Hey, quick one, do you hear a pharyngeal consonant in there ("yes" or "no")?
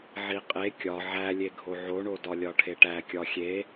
yes